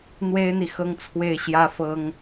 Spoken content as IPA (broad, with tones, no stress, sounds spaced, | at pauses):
n̪ w e˥ ɪ̯ n̪ i˨ x ɤ˥˧ ŋ t͡sʰ w e˥˩ ɪ̯ ɕ j ä˥ f ɤ˥ ŋ